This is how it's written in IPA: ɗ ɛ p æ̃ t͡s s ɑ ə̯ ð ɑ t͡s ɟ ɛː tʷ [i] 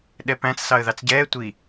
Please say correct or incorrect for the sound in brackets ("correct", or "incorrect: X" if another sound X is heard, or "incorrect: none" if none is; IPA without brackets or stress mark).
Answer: correct